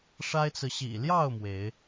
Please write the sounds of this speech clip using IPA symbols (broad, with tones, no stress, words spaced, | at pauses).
ʂa˦ɪ̯t͡sɹ̩˨ ɕḭ˨˩ljɑ˥˨ʊ̯ mwe˨˦ɪ̯